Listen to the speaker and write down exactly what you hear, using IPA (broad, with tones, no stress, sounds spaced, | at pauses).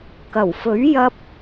k ɐ˨˩ w f ɵ˨˥ ɥ j ɐ˧ p̚